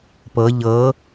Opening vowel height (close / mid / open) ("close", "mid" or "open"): mid